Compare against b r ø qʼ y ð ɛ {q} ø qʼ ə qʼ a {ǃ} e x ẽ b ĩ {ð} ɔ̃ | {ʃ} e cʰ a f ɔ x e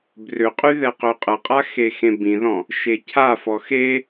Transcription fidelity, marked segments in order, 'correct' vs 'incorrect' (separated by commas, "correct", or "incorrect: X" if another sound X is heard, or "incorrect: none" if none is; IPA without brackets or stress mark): correct, incorrect: x, correct, correct